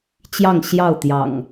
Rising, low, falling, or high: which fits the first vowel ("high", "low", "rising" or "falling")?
falling